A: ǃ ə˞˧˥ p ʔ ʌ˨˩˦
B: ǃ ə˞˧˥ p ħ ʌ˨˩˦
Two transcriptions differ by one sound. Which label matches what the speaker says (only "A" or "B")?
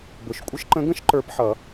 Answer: B